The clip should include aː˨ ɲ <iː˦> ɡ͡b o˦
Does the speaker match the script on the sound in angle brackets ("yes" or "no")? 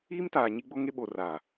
no